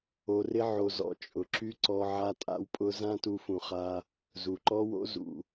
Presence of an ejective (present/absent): present